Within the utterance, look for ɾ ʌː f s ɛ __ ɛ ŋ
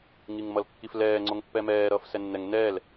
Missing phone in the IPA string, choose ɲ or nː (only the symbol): nː